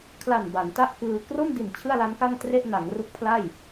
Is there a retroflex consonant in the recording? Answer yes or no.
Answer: no